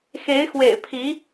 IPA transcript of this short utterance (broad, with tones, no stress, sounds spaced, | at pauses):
x e˧˥ ɪ̯ x w ḛ˨˩ ɪ̯ pʰ i˧˥